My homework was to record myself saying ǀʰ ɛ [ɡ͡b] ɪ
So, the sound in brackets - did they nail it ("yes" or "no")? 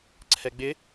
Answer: yes